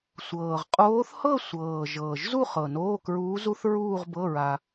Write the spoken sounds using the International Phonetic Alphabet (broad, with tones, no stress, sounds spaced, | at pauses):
sʷ ɤː˨˩ ʁ qʼ oː˧˥ θ h ɤ˥˧ sʷ ɤː˨˩ ʒ ɤː˨˩ ʒ z u˥˧ χ ɤ˨˩ n oː˧˥˧ k ɹ uː˧˥ z u˧˥ θ ɹ uː˥˧ ʁ b ɤ˧˥˧ ɹ a˧